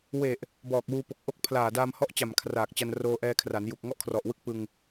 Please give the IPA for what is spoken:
w e˨˩ ʔ | b ɔː˨˩ k̚ w uː˧ p o˨˩ k̚ ʔ o˦˥ k̚ pʰ l aː˨˩ d aː˧ m h ɔ˦˥ ʔ t͡ɕ a˨˩ m kʰ r aː˨˩ k̚ t͡ɕ a˧ n r oː˧ ʔ ɛː˧ kʰ r a˩˦ n j u˨˩ k̚ ŋ ɔ˥˩ ʔ kʰ r ɔ˨˩ ʔ w ɯ˦˥ k̚ p ɯ˧ ŋ

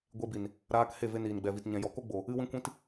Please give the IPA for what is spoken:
ɡʷ e˦ b i˨ n | ɾ aː˧ k h e˦˨ v e˧ n iː˨ n ɡ͡b ɛ˨ v i˨ t ɲ ɛ̃˨ j ɔ˨ k o˦ ɡ͡b o˨ | ɨ˦ w ĩ˦ kʷ ĩ˦ t

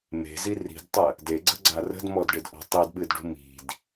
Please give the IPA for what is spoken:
m e̤ z i r i̤ d tˤ ə | d e ɡ͡ǀ ə̤ ɡ͡ǀ a r ə̤ d m ɔ d ɖ ɪ d ʔ ɔ̤ tˤ i d ɓ ɨ d ɖ ṳ m i̤ d

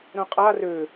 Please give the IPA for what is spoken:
ɾ œ̃ qʼ a r ø

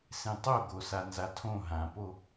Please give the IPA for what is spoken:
s ẽ tˤ o ɡ o s a n z a tʰ õ ɦ ã p o

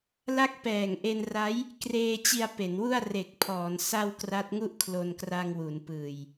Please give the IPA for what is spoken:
l a˦˥ k̚ p ɛː˨˩ ŋ ʔ e˧ n r a˦˥ j | k r eː˧ t͡ɕ i˧ a̯ p e˩˦ n w u˥˩ a̯ r e˨˩ k̚ pʰ ɔː˩˦ n s a˧ w k r a˦˥ t̚ ŋ u˥˩ ʔ kʰ l o˧ n k r a˧ ŋ w u˩˦ n p ɯː˨˩ j

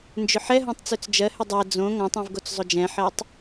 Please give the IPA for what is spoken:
n d͡ʒ ʏ ħ ɛ ɦ õ tˤ t͡s ø t͡s d͡ʒ ɜ h ʏ dˤ ɛ d͡z õ ŋ ɔ̃ tˤ ĩ v ɡ o t͡s zˤ o d͡ʒ ɛ̃ ħ ɜ tˤ

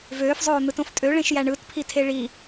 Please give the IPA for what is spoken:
v øː f zˤ oː n̪ ɯ t õ f tʼ ø ɭ ẽ ʃ j æ ɳ ɯ t pʰ i tʰ e ɭ i

